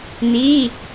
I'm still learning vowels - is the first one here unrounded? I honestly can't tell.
yes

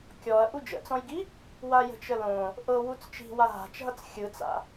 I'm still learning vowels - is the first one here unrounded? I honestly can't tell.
no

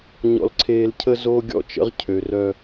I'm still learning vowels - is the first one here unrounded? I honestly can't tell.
no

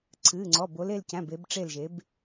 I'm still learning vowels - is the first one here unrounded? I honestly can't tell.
yes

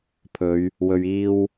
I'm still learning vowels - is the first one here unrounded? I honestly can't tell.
no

